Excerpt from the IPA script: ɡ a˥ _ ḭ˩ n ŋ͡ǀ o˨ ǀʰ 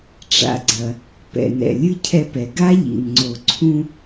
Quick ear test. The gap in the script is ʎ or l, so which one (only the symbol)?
ʎ